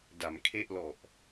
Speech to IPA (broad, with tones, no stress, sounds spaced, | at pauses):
d a˩˦ m kʰ e˥˩ ʔ l ɔ˨˩ ʔ